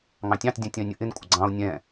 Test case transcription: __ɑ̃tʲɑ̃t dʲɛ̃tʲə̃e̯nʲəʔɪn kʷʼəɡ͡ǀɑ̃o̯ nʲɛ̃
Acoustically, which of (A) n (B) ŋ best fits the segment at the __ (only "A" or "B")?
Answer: B